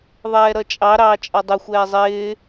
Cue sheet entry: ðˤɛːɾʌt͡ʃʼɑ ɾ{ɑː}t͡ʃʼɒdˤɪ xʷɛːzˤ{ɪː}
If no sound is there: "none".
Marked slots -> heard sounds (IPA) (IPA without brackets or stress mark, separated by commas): ɑː, ɪː